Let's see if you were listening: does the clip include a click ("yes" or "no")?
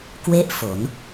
no